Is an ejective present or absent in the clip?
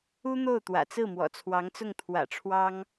absent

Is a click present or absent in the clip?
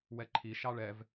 present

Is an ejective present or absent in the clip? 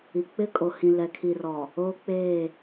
present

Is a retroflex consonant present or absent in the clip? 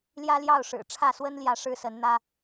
present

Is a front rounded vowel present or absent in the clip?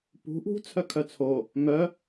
present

